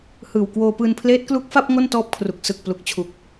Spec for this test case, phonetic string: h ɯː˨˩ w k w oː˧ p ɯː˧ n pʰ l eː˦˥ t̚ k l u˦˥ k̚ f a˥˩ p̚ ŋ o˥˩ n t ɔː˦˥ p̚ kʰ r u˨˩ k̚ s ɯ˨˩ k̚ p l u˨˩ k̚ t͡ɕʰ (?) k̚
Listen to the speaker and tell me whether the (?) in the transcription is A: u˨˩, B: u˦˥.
A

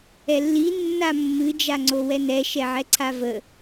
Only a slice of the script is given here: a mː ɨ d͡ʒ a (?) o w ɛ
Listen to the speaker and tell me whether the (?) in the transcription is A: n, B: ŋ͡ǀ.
B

